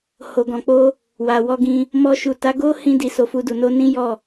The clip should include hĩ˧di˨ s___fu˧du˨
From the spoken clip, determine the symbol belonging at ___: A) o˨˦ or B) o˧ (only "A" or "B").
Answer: A